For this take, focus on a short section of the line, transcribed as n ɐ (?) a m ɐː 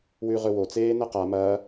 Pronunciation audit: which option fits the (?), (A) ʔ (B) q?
B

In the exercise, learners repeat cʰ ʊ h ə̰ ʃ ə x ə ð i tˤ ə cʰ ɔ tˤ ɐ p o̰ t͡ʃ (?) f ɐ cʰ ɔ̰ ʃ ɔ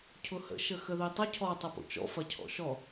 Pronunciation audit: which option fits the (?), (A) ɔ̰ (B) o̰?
A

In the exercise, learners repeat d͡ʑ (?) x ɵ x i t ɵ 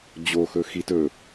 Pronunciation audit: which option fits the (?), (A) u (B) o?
B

